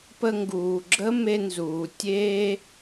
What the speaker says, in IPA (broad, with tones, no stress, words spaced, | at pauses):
pə˦ŋɡuː˩ ɡ͡ǁə˥ me˦nzuː˩ tʲeː˥